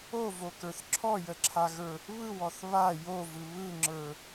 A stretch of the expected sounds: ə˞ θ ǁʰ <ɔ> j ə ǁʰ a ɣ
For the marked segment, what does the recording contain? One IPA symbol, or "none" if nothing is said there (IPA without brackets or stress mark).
ɔ